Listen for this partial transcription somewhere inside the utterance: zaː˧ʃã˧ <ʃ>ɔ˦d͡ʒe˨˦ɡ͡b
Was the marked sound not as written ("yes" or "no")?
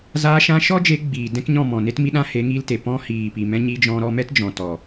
no